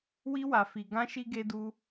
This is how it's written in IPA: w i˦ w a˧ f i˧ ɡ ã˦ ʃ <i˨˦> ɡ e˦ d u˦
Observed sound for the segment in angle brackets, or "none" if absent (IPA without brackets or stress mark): i˦